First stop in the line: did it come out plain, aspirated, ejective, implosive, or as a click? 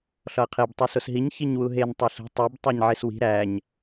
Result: aspirated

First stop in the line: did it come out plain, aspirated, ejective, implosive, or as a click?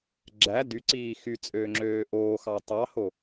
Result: click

